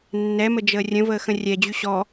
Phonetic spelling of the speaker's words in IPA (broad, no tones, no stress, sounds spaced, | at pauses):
nː ɛ m ə d͡ʒ əː rʲ ə̃ v əː x ə̃ rʲ ɛ d͡ʑ y ɕ ɔ